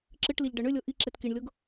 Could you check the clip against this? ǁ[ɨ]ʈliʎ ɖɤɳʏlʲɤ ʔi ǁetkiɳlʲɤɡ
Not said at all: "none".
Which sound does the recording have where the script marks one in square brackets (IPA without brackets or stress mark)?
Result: ɨ